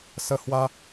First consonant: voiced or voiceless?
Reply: voiceless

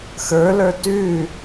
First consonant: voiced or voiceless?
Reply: voiceless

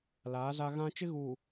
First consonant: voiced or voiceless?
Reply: voiced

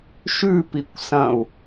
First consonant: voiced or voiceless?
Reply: voiceless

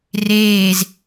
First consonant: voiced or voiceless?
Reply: voiced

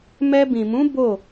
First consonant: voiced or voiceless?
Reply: voiced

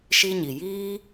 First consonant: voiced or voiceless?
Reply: voiceless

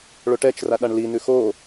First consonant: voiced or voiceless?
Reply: voiced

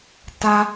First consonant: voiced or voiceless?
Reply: voiceless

